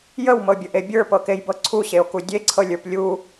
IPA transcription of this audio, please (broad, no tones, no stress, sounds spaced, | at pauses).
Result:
j ə w m ɤ bʲ ə ʔ e bʲ ə˞ p ɤ k e j b ɤ ǀʰ u ɕ e o̯ k u dʲ e ǀʰ ɤ lʲ ə˞ p lʲ u